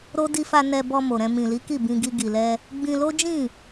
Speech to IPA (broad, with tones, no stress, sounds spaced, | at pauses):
ɾ o˦ d i˧ f a˧ n ɛ˧ b ɔ˧ m o˨ ɾ ɛ̃˧ m ĩ˨ l i˨˦ k i˦˨ b ĩ˧ ɡ i˧ ɡ i˨ l ɛ˧ | ɡ͡b ĩ˧ l o˦ d͡ʒ ĩ˦˨